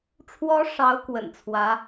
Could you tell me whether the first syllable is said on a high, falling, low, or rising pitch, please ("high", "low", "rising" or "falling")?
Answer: rising